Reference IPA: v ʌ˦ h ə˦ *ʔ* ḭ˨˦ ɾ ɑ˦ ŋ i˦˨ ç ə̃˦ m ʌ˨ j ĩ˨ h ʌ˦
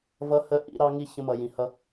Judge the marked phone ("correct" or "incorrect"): correct